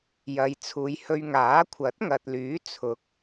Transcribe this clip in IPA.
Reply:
j ɐ˨˧ j t͡sʰ uː˨ j h ɵ˧ ɥ ŋ aː˨˥ kʷʰ ɐ˨˥ t̚ ŋ ɐ˨ t̚ l yː˨˥ t͡sʰ ʊ˨˥ k̚

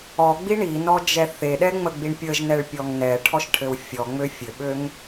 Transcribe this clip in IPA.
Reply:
ɔ ɡ͡b i ɳ i n ɔ d͡ʒ ɛ θ e ɗ ɛ ŋ͡m ə ɡ͡b i ɳ pʲ ə ʒ n ɛ ɭ pʲ ɔ ŋ n ɛ ʈʰ ɔ ʃ ʈʰ ɘ w fʲ ɔ ŋ͡m ø fʲ ɘ ɓ ø ŋ

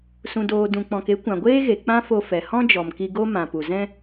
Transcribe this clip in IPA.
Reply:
s ũ˧ d oː˧ d ũ˧ k͡p ɔ̃˧ k e˦ kʷ ã˨ ɡʷ eː˦ ɣ e˨ k͡p ã˦ f o˧ f ɛ˨ h ɔ̃˦ d͡ʒ ɔ˨ m k i˧ ɡ o˦ m ã˨ p u˨ z ɛ̃˦

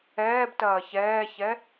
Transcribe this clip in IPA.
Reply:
ɛː b t ɐː ç ɛː ç ɛ

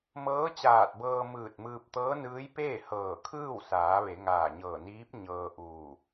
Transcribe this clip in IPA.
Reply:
m ɤː˧˥ t͡ɕ aː˧˩ t̚ b ɤː˧ m ɯː˧˩ t̚ m ɯː˧ p̚ t̪ ɤː˧˥ n ɯː˧˥ j p eː˥˨ h ɤː˧˩ kʰ ɯː˥˨ w s aː˩˧ ʋ e˩˧ ŋ aː˧˩ ɲ ɤː˧˩ n iː˧˥ p̚ ɲ ɤː˧ ʔ uː˧˩

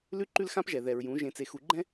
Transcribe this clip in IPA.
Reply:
l ʉ˦ ǃ ʉ˦ l x ã˦ p ʒ ɛ˨ ð ɛ˨ ɹ j ũ˨˦ ʒ ẽ˨ t͡s e˨ x u˨ ɡ͡ǃ ɛ̃˦

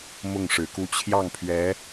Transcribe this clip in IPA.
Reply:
m ʊ˥˩ ŋ ʂ ɻ̩˨˩ k u˥˧ t͡ɕʰ j ɑ˥˩ ŋ pʰ ɥ ɛ˧˥

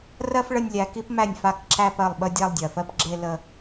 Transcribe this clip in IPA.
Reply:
r ɜ˥ f ɭ ə˥˧ nʲ lʲ æ˨˦ k i˥ p m æ˥˩ nʲ f a˥˩ k ǁ æ˥˧ p ɜ˥˩ lˠ ɓ ə˥˧ dʲ æ˥˧ lˠ dʲ ɜ˨˩ f ɜ˥ p ɡ͡ǁ e˥˧ l ə˥˧

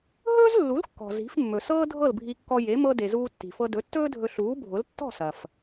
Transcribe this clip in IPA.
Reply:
ɦ ɵː˥ z lː u˩˥ l kː ɔ̤˩ z i̤˩˥ f mː ɵ˩ s ɤː˥ dʱ ɤ˥˩ l bʱ i˧ kː ɔ˧ j e˩˥ m ɤ˧ d e˩ z uː˧ tː i̤˩ f ɤ˧ d ɵ˩˥ tː ɵː˥ dʱ ɵ˧ ɬ uː˩˥ bʱ ʊ˩˥ l tː ɔ̤˥˩ s ɐ˩ f

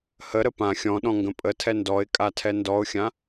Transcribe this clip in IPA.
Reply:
h ə ɾ ə p ã xʲ ɔ̃ ɗ ɔ̃ ŋ ɡ ə̃ pʼ ə tʰ ɛ n d ɔ ɪ̯ kʼ a tʰ ɛ n d ɔ ʊ̯ xʲ ã

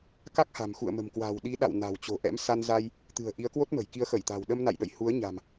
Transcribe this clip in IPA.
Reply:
k a˦˥ k̚ h a̤˨˩ m x ṵ˧˨ ə̯ m ə̤˨˩ m k w a̤˨˩ w ɗ i˨˦ ɗ a̰˧˨ w n a̤˨˩ w t͡ɕ o̤˨˩ ʔ ɛ̰˧˥ m s a˧ n z a˧ j | t̪ ɨ̤˨˩ ə̯ ʔ i˨˦ ə̯ k w o˦˥ t̚ m ə̤˨˩ j k i˨˦ ə̯ x ə˧˩ j t̪ a̤˨˩ w ɗ ə˧ m n a̰˧˨ j ɗ ə̰˧˨ j h u˨˦ ə̯ ɲ a̤˨˩ m

